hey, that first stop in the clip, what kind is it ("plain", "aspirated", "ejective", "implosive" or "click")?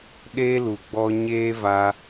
implosive